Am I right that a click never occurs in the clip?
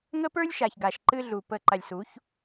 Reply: no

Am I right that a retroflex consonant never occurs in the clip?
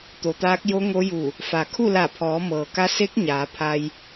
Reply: yes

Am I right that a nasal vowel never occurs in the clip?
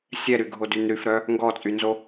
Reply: yes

